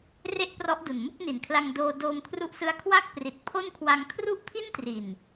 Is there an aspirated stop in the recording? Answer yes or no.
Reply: yes